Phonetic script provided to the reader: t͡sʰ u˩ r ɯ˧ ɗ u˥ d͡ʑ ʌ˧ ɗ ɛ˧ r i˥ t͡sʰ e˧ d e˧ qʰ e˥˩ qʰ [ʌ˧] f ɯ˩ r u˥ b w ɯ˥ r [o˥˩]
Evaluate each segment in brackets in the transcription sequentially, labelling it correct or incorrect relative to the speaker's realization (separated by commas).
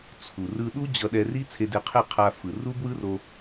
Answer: incorrect, incorrect